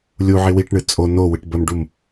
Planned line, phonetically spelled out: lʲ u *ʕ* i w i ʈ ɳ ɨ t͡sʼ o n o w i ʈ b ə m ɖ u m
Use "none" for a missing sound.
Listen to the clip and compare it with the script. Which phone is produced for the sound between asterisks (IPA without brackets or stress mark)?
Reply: ʕ